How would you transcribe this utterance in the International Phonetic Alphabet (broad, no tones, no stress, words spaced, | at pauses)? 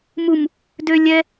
mum | dø lʲɛ